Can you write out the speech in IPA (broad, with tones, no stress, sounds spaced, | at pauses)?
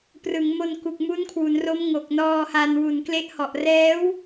p r ɯ˩˦ ŋ m o˧ n k u˨˩ k̚ m u˦˥ n kʰ w u˩˦ n r o˦˥ m ŋ o˨˩ k̚ n ɔː˧ h a˧ n w u˨˩ n k l e˦˥ ʔ h ɔ˨˩ ʔ r ɛː˦˥ w